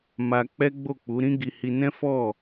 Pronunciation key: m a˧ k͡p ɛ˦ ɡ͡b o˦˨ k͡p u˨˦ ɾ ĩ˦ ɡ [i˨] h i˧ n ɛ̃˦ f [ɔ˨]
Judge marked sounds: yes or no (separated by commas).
no, no